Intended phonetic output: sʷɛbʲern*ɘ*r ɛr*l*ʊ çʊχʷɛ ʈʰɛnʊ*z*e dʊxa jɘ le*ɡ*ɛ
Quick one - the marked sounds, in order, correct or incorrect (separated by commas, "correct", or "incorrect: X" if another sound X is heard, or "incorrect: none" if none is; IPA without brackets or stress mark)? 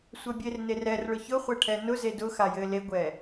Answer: incorrect: e, incorrect: ɭ, correct, incorrect: ɡʷ